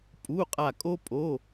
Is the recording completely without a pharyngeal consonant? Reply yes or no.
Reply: yes